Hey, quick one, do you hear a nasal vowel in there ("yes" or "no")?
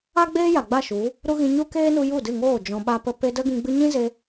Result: yes